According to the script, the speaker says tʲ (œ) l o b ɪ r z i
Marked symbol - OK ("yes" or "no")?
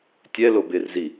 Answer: no